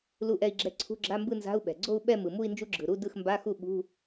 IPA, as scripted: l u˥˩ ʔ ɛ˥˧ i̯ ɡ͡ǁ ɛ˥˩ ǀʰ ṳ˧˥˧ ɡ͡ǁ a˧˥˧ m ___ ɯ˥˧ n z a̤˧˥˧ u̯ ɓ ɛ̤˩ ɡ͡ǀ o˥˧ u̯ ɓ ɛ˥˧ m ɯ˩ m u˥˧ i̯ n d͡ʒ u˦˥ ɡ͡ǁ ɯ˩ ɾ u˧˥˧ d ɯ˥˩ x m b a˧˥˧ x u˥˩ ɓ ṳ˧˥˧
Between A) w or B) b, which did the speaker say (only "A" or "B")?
B